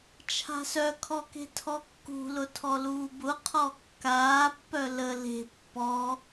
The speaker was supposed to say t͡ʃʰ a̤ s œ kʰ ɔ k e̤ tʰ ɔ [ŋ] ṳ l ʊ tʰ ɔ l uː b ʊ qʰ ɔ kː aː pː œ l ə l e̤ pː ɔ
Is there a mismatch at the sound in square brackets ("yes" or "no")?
yes